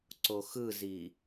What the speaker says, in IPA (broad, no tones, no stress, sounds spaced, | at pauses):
ǀ o x ɯ z i